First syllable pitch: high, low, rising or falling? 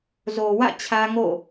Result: low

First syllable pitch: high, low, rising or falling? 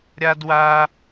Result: high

